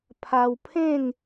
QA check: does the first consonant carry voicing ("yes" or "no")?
no